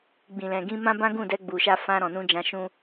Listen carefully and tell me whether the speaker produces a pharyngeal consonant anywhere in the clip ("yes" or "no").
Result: no